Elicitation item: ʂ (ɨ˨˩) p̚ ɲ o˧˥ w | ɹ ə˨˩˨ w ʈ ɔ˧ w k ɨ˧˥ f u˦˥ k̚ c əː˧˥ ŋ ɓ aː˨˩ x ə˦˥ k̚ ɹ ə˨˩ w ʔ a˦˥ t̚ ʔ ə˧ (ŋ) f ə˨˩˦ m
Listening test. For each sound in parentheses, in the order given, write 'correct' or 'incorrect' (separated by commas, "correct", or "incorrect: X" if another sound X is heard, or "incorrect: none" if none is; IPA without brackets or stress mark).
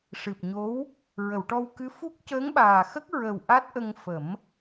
correct, correct